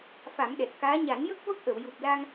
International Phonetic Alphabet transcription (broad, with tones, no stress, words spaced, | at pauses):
fa˨˩˦mɗɛ˨˩t̚kaː˧˥ ɲa˨˩˦njə˦˥k̚ və˦˥k̚ʔə˨˩˨w ju˨˩p̚la˧ŋ